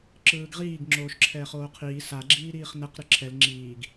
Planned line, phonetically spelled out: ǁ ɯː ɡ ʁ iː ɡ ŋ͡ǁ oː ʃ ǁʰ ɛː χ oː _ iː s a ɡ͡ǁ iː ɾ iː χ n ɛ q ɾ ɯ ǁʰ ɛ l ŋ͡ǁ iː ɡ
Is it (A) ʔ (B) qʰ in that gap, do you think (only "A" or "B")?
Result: B